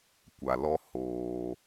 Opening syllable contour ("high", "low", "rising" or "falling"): low